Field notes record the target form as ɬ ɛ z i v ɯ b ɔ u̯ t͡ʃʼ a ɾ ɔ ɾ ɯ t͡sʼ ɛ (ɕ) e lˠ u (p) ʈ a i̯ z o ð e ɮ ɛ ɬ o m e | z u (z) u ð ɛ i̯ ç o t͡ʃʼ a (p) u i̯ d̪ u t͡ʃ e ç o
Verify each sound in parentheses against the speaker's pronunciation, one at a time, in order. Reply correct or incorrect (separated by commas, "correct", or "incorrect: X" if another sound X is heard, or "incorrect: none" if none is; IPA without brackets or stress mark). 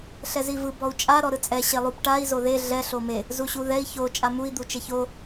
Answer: correct, correct, incorrect: ɕ, incorrect: m